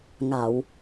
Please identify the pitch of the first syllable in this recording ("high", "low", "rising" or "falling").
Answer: low